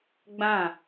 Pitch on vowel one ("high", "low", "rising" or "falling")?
falling